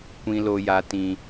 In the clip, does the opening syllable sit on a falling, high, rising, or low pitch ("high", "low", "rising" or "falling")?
high